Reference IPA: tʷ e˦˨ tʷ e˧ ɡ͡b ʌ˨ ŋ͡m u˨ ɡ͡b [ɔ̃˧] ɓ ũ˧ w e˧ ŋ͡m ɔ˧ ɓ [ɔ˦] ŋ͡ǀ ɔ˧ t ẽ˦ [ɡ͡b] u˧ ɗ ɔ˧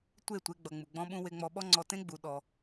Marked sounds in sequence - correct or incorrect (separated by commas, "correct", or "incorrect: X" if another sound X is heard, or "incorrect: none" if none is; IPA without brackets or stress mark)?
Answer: correct, correct, correct